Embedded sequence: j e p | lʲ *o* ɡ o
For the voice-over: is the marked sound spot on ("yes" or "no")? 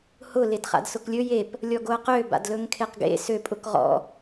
no